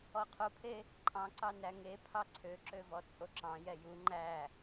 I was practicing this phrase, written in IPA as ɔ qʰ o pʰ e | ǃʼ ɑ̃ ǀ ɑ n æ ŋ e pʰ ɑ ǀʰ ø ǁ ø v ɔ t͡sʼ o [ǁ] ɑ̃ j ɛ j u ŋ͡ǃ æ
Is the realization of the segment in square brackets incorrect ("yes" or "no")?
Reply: no